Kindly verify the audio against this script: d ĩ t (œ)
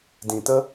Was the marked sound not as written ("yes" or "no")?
yes